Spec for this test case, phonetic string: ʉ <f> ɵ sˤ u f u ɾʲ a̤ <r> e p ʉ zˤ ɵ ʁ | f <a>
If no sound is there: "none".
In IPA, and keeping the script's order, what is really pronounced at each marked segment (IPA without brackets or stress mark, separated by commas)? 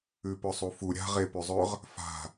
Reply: p, ʁ, a̤